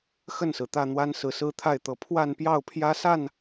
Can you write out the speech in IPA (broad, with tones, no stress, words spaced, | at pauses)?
xə˥˨nsɹ̩˩t̪ä˥˨n̪wa˦n sɹ̩˨˦sɹ̩˦t̪ʰa˥˨ɪ̯t̪ɤ˨˦ pʰwa˥˨npjɑ˥˨ʊ̯pʰjä˦sa˥˨n